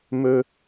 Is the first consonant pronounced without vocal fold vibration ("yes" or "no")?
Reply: no